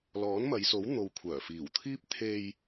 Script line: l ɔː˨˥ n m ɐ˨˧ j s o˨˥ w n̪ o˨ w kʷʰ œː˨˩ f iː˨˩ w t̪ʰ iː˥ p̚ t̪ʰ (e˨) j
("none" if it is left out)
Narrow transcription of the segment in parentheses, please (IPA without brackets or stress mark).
e˧